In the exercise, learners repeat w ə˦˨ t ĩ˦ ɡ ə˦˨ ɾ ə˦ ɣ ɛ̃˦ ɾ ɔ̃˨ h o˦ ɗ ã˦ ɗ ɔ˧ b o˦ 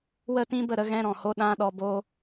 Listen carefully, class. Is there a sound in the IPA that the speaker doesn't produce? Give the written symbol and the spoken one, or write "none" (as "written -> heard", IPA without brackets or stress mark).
ɡ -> b